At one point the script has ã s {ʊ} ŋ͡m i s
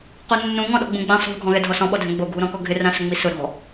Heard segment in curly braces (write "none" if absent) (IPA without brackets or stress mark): ʊ